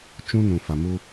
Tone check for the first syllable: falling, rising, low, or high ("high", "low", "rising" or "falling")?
high